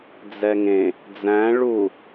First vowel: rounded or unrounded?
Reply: unrounded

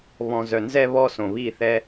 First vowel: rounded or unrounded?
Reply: rounded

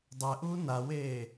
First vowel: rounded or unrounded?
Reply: unrounded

